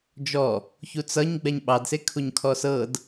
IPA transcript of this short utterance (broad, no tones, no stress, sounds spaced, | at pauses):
d͡ʒ ɔ | ç u t͡s ʌ ɲ ɡ͡b ɛ ɲ ɓ ɑ d s e kʰ u ɲ kʰ ɔ s ɤ d